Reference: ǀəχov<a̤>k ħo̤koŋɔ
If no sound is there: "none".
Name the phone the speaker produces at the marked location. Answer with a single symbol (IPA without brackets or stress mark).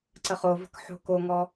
ə̤